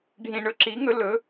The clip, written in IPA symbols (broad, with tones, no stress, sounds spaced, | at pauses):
ɖʱ ĩ˨ ɳ ɵ˩˥ ǁ i˩˥ ŋ ɵ˧˥ l ɵ˩˥